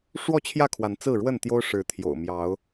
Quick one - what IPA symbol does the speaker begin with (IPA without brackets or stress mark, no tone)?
ʂ